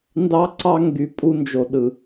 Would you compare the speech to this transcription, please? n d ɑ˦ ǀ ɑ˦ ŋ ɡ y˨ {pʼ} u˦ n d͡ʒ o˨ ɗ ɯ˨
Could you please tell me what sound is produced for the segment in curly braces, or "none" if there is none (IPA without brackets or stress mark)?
pʼ